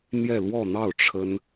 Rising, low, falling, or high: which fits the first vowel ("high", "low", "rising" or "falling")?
falling